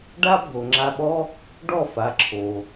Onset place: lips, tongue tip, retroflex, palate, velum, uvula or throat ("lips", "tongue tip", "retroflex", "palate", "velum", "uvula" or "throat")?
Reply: retroflex